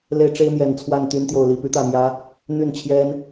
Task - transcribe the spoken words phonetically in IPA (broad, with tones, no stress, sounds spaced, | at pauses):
l e˦ ɪ̯ ʈ͡ʂ e˦ ɪ̯ m j ɛ˨˩ n t͡sʰ w a˥˨ n t̪ y˦ n t̪ j o˨ ʊ̯ l i˥˨ p y˦ t̪ ä˥˨ m j ä˦ | n̪ y˥˨ n t͡ɕʰ j ɛ˦ n